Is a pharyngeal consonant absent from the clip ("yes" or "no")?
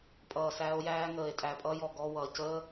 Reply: yes